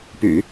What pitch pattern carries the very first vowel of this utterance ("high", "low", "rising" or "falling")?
low